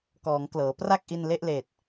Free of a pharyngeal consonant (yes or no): yes